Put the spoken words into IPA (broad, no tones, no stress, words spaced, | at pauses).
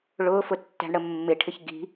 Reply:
ɭʊːfʊtːæ̤ɳɽə mːɪʈʰɪç ɡi̤